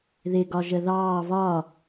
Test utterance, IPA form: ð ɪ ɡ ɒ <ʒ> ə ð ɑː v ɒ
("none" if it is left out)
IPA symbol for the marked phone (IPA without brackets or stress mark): ʒ